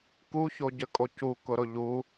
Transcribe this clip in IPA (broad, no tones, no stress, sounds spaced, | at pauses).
k u ç o ɟ ə kʼ o c u k ʊ ɾ ʊ ʎ u